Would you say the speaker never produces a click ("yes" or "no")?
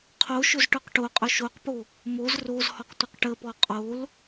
yes